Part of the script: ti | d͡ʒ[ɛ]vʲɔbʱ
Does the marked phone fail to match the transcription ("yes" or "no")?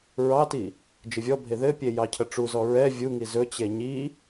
yes